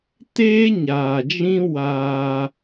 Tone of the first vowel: high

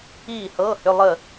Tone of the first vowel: falling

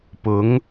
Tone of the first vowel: rising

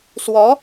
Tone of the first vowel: rising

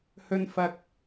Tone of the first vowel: low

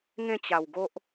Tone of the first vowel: falling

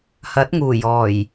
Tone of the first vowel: rising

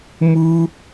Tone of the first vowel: high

